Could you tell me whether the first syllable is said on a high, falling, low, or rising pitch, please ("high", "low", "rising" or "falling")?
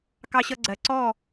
high